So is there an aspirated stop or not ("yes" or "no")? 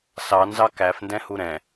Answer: no